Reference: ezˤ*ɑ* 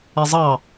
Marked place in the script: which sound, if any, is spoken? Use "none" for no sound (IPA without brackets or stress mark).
ɑ